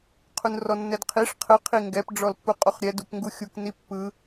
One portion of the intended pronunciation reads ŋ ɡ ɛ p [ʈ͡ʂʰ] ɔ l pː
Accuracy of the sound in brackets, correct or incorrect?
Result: incorrect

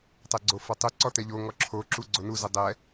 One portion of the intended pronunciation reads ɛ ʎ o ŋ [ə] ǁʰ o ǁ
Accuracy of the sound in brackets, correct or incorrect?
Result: incorrect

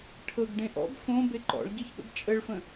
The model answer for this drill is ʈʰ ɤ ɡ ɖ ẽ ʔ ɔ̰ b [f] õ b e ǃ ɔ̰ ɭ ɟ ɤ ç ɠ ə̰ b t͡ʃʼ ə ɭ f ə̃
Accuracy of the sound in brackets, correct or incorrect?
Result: correct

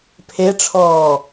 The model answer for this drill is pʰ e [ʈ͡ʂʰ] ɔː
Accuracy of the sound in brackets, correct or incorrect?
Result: correct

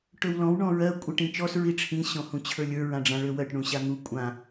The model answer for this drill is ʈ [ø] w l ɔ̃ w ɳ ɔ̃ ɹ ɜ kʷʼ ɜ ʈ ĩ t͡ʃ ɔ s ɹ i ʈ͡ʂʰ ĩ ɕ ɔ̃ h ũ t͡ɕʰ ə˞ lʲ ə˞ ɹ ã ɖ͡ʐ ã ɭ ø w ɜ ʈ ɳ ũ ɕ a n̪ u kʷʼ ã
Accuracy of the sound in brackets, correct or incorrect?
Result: correct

